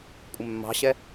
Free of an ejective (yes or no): no